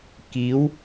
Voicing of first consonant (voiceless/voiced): voiceless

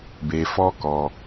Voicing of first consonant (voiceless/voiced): voiced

